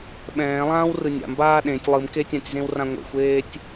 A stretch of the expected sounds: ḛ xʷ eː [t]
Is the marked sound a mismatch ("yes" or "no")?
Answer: yes